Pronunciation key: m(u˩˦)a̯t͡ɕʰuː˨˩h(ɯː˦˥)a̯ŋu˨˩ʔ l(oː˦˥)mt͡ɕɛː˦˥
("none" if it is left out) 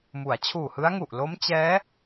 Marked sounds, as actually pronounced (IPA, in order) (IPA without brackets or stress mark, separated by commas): u˩˦, ɯ˦˥, o˦˥